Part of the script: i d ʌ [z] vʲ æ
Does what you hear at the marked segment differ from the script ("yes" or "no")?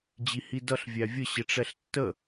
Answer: yes